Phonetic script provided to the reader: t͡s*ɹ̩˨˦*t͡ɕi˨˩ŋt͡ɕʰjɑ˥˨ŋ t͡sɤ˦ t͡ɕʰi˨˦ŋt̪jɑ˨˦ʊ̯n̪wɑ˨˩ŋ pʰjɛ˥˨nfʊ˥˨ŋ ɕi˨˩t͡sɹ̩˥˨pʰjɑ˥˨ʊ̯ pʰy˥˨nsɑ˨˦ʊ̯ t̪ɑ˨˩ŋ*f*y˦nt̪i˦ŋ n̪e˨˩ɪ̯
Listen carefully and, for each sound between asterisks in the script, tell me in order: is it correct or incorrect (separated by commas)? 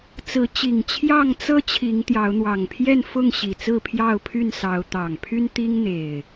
correct, incorrect